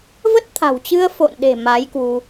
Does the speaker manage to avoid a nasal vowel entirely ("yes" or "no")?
yes